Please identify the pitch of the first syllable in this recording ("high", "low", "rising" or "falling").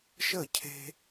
falling